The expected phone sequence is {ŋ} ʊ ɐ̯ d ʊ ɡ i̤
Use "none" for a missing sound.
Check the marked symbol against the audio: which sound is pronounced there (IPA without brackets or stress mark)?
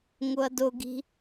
ŋ